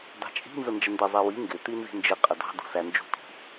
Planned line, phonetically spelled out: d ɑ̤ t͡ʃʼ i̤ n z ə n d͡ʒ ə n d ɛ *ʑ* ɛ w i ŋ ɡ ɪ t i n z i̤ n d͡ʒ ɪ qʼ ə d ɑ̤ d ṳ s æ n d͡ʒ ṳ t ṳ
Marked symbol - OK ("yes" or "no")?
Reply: no